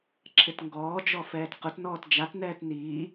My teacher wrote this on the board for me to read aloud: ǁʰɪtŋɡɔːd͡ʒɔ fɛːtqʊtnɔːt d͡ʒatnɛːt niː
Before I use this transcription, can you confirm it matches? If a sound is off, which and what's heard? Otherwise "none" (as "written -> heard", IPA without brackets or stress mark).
none